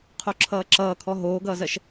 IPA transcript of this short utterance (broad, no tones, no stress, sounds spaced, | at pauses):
qʰ o ǁʰ ʌː ǁ ʌː kʰ ɔ ɦ oː ɡ ʌː z ɜ ʃ